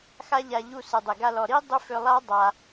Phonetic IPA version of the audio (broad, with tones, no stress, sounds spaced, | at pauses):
x a˦ ʎ a˧ ʎ u˧ s ɯ˨ dˤ e˨ ɡ a˧ l ɔ˨ ɾ i˦ dˤ ʏ˦ f ʏ˧ lˠ a˦ dˤ a˧